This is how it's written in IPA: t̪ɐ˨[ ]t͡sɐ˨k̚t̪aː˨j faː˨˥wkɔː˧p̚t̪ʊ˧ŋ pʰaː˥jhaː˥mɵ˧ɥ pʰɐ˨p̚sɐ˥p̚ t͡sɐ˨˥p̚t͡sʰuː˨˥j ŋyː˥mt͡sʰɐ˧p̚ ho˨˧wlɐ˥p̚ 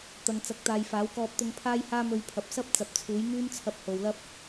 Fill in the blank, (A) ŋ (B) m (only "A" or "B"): A